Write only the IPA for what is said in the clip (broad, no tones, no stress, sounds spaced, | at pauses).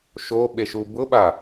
ʃ o ɓ e ʃ u b ʊ ɓ a